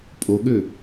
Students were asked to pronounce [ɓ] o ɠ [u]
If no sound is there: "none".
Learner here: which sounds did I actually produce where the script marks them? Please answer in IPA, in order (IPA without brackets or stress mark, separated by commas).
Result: pʼ, ø